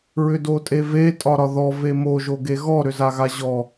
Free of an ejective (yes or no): no